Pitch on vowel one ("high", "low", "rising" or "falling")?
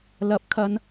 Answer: rising